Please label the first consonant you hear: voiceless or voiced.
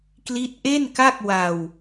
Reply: voiceless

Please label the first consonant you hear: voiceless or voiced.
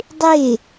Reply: voiced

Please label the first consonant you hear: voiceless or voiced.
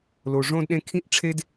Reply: voiced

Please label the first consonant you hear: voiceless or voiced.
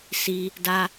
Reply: voiceless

